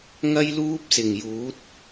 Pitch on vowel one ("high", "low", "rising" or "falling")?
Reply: high